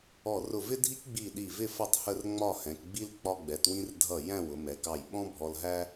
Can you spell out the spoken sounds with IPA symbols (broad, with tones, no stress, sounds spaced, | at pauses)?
ɔ˧˩ r ʊ˧˩ v ɪ˥ dʱ i˥ k ɡ͡b i˧˩ ɗ i˧˩ v ɪ˥˧ f ʌ˥˧ tˤ h ə˥˧ r ŋ͡m ɒ˥˧ h ɛ̃˩˧ k ɡ͡b i˥ l k͡p ɒ˧ ɡ͡b ɛ˩˧ t w ĩ˧ r dʱ ʌ˧˩ j æ̃˥˧ w ʊ˩˧ m ɛ˩˧ k ɑ˧˩ j ɓ ɔ̃˥ bʱ ɔ˧ l ɦ æ˥